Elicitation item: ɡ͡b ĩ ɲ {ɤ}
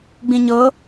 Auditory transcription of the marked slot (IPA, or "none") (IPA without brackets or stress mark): ɤ